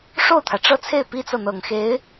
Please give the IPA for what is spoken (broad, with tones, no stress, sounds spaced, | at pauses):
ʂ o˥˩ ʊ̯ t̪ʰ ä˩ ʈ͡ʂ ɤ˥˧ t͡sʰ e˥˩ ɪ̯ p i˥ t͡s ɤ˨ n̪ ɤ˨˩ ŋ x e˧˥ ɪ̯